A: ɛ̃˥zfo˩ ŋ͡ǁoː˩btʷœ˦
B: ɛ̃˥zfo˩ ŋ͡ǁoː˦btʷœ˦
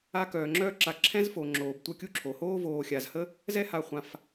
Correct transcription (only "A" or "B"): A